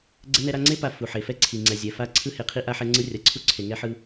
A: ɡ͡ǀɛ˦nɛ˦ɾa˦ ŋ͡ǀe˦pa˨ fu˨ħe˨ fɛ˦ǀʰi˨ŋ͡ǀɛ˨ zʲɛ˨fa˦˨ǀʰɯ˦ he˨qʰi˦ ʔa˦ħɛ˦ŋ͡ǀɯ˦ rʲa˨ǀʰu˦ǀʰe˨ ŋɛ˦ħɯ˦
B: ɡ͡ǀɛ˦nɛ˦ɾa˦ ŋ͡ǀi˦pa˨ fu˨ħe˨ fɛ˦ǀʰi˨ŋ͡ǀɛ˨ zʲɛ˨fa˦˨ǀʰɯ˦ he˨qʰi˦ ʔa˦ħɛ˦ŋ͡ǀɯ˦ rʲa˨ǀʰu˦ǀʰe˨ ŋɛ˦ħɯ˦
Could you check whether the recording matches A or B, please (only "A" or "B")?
A